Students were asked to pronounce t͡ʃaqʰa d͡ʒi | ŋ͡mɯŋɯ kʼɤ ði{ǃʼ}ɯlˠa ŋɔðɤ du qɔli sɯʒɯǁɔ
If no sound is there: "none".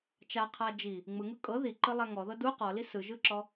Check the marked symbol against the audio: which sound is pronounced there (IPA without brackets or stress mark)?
ǃ